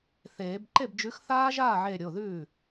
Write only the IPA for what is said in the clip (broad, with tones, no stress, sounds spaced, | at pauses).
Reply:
θ eː˨˩˦ b ǃ e˥˩ b d͡ʒ ʉ˨˥ x θ aː˦˥ ʒ aː˥˩ ʕ e˧˩ ɾʲ o˩˧˩ ð ʉː˥˩